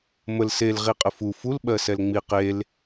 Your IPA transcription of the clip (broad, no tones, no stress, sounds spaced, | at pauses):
m ə l s e l ʁ i qʼ ə f u f u l ɓ ɜ s ɛ l ŋ͡m i q e l